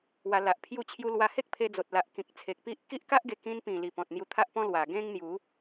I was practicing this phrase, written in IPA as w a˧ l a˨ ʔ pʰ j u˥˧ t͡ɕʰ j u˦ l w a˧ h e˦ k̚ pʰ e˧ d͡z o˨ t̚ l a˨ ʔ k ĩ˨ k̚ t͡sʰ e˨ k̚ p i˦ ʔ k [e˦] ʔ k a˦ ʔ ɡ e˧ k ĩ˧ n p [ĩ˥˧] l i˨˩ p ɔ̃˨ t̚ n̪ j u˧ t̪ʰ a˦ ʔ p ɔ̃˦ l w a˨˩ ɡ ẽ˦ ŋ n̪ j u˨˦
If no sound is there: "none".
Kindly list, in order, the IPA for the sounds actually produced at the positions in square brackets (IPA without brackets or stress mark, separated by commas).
i˦, ĩ˨˩